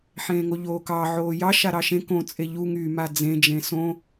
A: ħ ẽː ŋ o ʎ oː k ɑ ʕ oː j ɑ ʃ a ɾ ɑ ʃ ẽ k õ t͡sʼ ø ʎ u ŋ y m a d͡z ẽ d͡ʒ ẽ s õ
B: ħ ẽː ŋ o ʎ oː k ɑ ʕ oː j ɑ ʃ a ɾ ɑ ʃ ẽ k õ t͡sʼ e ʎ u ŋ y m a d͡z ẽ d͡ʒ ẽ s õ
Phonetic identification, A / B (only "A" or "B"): B